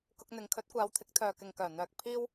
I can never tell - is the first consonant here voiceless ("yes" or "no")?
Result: yes